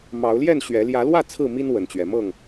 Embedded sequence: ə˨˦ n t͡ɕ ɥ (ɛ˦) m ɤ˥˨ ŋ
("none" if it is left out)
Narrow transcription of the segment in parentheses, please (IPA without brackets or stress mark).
ɛ˨˦